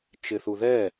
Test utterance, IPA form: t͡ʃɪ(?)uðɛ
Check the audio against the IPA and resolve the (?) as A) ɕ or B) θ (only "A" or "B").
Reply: B